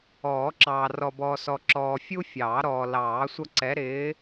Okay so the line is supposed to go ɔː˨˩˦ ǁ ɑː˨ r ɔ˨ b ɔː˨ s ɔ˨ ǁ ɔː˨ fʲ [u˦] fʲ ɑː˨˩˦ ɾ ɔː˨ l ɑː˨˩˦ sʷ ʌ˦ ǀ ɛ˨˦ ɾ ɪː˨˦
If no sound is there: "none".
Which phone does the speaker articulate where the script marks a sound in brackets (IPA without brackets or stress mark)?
u˦